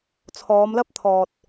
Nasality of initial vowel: oral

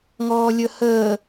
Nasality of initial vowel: oral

